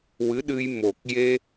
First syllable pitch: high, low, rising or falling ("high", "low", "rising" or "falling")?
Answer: rising